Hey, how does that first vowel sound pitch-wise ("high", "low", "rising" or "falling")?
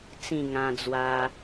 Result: falling